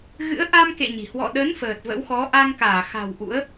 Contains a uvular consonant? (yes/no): no